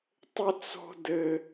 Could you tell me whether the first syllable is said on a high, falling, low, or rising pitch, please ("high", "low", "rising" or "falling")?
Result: high